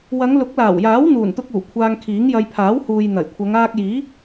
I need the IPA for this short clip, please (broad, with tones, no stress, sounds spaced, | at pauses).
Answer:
w ɐ˨˧ ŋ l ʊ˨˥ k̚ l aː˨˩ w j aː˨˥ w n̪ uː˨˩ n t̪ ʊ˧ k̚ uː˨˩ kʷʰ aː˧ ŋ kʰ iː˨˥ ŋ j ɐ˧ j pʰ aː˨˥ w h uː˨ j n̪ ɐ˨˩ j kʷʰ ɐ˨˧ ŋ aː˧ k̚ j iː˨˥